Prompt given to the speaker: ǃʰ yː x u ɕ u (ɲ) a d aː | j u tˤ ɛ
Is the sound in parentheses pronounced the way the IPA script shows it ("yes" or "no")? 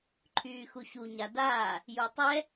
yes